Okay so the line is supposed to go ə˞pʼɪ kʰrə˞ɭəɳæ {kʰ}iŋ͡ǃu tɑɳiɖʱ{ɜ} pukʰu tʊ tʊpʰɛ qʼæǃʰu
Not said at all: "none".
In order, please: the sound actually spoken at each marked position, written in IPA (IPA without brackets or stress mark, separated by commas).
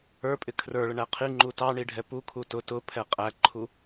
qʰ, ɛ